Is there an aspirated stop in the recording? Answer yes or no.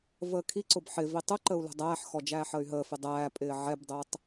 yes